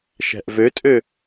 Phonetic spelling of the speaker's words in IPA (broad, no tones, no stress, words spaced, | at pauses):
ʃæ̤ʔvøtʼø